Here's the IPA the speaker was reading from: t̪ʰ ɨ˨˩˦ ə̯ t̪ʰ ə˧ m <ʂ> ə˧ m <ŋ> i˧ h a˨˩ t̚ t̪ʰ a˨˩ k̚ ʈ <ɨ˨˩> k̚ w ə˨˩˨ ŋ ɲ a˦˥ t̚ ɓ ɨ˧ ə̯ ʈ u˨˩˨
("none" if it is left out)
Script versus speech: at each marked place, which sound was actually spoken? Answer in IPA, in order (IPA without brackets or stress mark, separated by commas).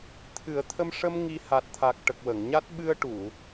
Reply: ʂ, ŋ, ə˨˩